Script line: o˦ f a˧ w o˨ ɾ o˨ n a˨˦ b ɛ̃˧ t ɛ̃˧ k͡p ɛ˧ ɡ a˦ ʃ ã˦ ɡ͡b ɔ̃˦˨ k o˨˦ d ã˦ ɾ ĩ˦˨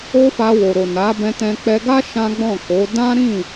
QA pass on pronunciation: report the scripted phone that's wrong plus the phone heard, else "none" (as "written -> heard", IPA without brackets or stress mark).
none